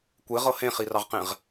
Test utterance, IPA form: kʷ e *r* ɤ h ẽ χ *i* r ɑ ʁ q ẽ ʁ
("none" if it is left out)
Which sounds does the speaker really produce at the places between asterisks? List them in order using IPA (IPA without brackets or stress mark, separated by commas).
ʁ, i